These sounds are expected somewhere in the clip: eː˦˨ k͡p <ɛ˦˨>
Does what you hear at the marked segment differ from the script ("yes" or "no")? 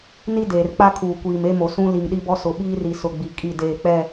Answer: no